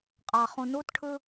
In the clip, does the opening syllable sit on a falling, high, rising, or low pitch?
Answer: low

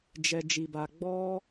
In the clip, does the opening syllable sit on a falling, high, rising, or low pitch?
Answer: low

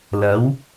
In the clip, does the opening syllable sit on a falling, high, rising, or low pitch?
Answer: rising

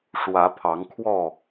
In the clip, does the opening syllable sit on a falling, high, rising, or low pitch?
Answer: rising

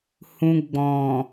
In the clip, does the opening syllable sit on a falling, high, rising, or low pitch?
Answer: low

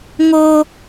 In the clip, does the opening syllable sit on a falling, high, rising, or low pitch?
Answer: high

